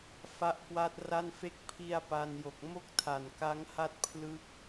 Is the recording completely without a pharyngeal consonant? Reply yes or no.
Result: yes